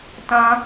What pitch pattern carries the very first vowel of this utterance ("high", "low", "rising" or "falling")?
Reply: high